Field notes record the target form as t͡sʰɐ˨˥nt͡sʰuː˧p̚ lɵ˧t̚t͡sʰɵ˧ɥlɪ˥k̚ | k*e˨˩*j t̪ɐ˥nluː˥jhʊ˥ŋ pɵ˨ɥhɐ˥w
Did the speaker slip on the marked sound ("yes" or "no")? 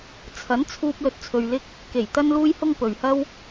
no